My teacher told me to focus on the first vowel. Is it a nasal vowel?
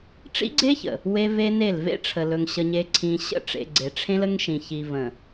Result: no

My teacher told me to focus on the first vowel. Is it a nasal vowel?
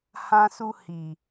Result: yes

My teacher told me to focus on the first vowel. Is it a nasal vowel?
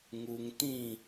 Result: no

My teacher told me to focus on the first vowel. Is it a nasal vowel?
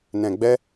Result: yes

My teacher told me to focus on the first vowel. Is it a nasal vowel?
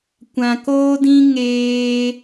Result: yes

